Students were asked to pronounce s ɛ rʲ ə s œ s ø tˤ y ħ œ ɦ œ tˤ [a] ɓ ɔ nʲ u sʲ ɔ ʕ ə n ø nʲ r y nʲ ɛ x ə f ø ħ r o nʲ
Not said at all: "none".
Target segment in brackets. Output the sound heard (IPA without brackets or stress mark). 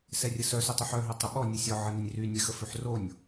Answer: ə